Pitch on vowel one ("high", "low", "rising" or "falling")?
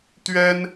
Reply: high